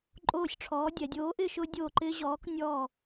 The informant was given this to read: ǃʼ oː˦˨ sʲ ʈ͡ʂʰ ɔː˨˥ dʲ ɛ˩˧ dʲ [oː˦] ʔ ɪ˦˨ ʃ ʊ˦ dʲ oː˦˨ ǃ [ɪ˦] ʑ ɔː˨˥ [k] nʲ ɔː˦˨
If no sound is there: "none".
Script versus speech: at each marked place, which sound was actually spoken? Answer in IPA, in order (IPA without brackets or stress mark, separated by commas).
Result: oː˨˥, ɪː˦, k